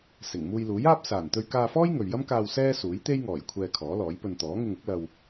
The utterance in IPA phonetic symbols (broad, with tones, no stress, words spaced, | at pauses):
sɪ˨˩ŋ muː˧jluː˨˥jaː˥p̚ saː˨˩nt̪ɵ˧ɥkaː˧fɔː˥j ŋɵ˨ɥjɐ˥mkaː˧w sɛː˥suː˨˥j t̪e˥j ŋɔː˨˩j kʷʰɛː˧kʰɔː˨˥lɔː˨˥jpɵ˧n t̪ɔː˨˥ŋɪ˧ŋʊ˨˥k̚ lɐ˧w